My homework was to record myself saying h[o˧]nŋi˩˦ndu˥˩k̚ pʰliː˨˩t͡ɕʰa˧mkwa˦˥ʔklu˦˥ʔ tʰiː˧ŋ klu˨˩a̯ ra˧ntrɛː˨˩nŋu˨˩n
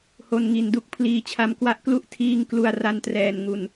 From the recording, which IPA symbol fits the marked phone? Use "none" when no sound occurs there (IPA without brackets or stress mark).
o˧